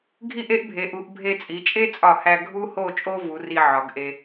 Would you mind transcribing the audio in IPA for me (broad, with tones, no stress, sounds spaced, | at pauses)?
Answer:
ɡʱ i˥˧ ʔ e˥ ʔ bʱ e˩˧ ʔ u˩˧ ʔ bʱ e˧ t͡sʼ i˩˧ t͡ʃʼ e˥ t͡sʼ ɒ˧˩ h æ˧ ɡʱ u˥ h o˥˧ t͡ʃʼ o˥ v u˩˧ r i˧ ʕ ɒ˩˧ ɡ ʔ e˧